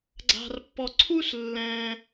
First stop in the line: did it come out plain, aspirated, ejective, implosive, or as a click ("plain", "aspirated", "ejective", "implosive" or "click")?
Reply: click